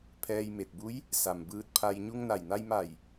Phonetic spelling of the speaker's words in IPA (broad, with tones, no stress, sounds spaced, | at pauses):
pʰ ɛː˧ j m e˧˩ t̚ b u˧˥ j | s a˩ m b ɯː˧ t̚ pʰ a˧ j ɲ u˧ ŋ n a˧˩ j n a˧ j m a˧˩ j